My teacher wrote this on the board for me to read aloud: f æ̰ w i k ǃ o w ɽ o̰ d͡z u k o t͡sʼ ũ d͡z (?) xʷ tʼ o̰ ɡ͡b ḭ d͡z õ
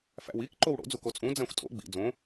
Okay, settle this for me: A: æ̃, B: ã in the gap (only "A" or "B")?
A